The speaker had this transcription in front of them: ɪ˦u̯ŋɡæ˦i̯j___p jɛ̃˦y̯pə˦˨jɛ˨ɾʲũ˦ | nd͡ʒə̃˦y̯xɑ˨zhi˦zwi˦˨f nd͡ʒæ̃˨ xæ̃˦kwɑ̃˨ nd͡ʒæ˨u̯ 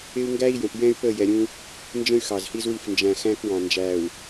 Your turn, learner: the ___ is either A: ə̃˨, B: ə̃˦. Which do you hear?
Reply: A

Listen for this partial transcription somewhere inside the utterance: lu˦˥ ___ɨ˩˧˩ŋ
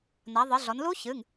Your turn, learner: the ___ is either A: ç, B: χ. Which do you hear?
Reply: A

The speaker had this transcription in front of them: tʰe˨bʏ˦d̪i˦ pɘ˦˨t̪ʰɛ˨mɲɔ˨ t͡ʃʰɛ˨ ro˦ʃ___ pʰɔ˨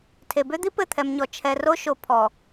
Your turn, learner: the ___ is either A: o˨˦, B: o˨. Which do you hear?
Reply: B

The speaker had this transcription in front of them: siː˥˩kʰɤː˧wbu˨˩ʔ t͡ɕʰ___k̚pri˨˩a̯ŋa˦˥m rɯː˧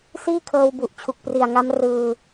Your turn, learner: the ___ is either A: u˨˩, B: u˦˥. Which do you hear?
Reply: A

